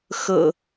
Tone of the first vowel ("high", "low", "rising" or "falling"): low